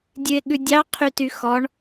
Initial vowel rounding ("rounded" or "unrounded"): rounded